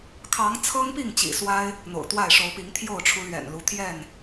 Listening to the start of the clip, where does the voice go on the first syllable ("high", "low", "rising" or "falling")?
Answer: rising